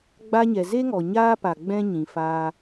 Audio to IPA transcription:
ɡ͡b a˧ ɲ ɛ˨ z e˦ ŋ ɔ˨ ɲ aː˦ p a˨ ɡ͡b ɛ̃˦ ɲ ĩ˨ f aː˦

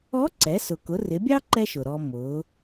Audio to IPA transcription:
ɔ˧˥ ǀ ɛ˩˧ s ʊ˩ k ʊ˩˧ r ɪ˩˧ bʲ ɑ˥ ǃ ɛ˥ ʃ ʊ˩ ɾ ɔ˧ m ʊ˩˧

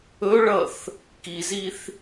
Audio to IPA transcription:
ɵ ɭ ʌ θ | k i z i θ

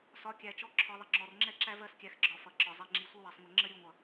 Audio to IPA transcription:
s ɒ˨˦ kʲ æ˨ t͡ʃ ɔ˧ ǁʰ ɒ˧ ðˤ ɪ˧ ŋ͡ǁ ɔ˨ r ŋ͡ǁ ɛ˦ ǁ æ˦ v ɜ˧ s kʲ æ˨ x ɡ͡ǁ ɒ˨ f ʌ˨ ǁ ɒ˨ zˤ i˨ ŋ͡ǁ i˨˦ sʷ ə˦ w ɜ˨ sˤ ŋʷ ɪ˨ ŋ͡ǁ ə˦ ɾʲ u˧ ŋʷ ʌ˨

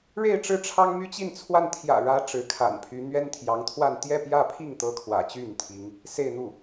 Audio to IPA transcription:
ɻ e˥˧ ɪ̯ ʈ͡ʂ ɻ̩˥˩ ʈ͡ʂʰ ɑ˥ ŋ m y˥ t͡ɕ i˥˧ n t͡sʰ w a˥˩ n t̪ʰ j ä̰˨˩ ɻ ä˧˥ ʈ͡ʂ ɻ̩˧˥ kʰ a̰˨˩ n pʰ y˧˥ n̪ ɥ ɛ˥ n t̪ʰ j ɑ˧˥ ŋ t̪ʰ w a˥˧ n t̪ j ɛ˥˧ p j ä˥˧ pʰ i˥˩ ŋ t̪ ɤ˥ kʰ w ä̰˨˩ t͡ɕ y˥˩ n t̪ʰ i˧˥ ŋ | s e˥˧ ɪ̯ n̪ u˥˩

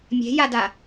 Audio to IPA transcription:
mʲ e̤ j a d a

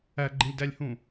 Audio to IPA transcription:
æ ɡ͡ǃ ĩ lʲ d æ lʲ h ũ

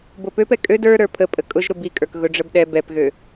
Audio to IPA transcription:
b o p ø p ɛ kʼ ø d ə˞ ɾ ə˞ pʰ ə pʼ ə kʼ ʊ ʒ ɾ ʊ b i kʼ ə˞ k ɣ ʊ ɖ͡ʐ ə b ɗ ɛ b ɛ p ɣ ø

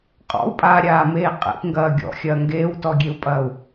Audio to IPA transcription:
qʼ ɔ̰ u̯ pʼ aː ɾʲ aː m eː qʼ ḛ p ŋ ɡ ɐː ɡʲ ɔ̰ xʲ ɐː ŋ ɡ eː w t ɔ ɡʲ e u̯ pʼ ɐː u̯

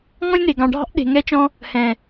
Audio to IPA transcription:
ŋ ɔ̃˦ lʲ n e˨ ɡ ɑ̃˨ ɖʱ ɑ̤˦ ʔ ɗ e̤˨ ŋ ɛ˦ t͡ʃ ɔ̃˦ | h ɛ̃˨

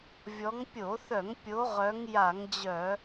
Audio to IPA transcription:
vʲ ɔ˨˦ ŋ pʲ o˧˩˧ θ œ˧˩˧ ŋ pʲ o˨˦ ʁ œ˨˦ ŋ j a˧˩˧ ŋ d͡ʑ œ˧˩˧

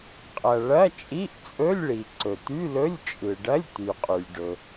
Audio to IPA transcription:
qʼ ɐ˩ ɭ ɐ˧˥˧ t͡ʃʼ i˧˥˧ ʔ t͡sʼ ɵ˧˥˧ lʲ ɭ i˩ ǀ ɵ˩ t̪ y˧˥˧ l ɵ˧˥˧ lʲ t͡ʃʼ ɯ˩ ɖ ɐ˧˥˧ lʲ t̪ y˩ qʼ y˩ lʲ ɖ ɵ˩

